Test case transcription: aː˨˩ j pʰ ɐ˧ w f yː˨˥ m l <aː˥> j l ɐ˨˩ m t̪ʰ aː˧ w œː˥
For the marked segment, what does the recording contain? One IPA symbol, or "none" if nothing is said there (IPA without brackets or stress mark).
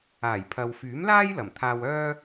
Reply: aː˥